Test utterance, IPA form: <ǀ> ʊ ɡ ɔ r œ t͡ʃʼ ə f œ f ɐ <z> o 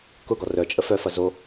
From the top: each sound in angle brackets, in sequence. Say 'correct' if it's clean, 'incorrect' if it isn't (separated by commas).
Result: incorrect, correct